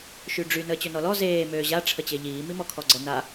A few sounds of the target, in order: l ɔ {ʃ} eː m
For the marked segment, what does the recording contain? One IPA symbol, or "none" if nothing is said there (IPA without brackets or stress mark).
z